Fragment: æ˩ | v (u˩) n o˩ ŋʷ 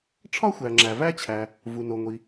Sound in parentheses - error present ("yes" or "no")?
no